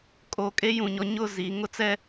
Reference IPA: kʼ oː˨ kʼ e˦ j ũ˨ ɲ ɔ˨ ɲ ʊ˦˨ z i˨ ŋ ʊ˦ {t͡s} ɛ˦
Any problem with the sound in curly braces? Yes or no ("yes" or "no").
no